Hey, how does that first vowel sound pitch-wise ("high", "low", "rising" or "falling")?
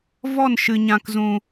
falling